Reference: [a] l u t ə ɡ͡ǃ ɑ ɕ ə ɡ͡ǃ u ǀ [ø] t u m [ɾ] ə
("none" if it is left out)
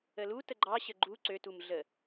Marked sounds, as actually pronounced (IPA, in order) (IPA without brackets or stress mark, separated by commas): ə, ø, ɮ